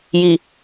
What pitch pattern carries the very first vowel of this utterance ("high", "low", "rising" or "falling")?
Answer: low